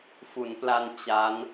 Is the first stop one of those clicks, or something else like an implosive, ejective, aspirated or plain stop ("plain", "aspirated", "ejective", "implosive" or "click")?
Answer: plain